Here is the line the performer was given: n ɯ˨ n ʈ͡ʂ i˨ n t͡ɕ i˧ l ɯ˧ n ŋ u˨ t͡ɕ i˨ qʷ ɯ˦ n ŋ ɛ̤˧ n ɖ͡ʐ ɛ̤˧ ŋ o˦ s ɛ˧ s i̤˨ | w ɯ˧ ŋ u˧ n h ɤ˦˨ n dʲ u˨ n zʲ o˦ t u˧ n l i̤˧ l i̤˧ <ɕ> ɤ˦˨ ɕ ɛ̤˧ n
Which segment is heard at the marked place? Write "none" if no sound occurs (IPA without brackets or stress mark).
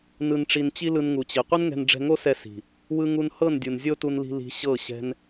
ɕ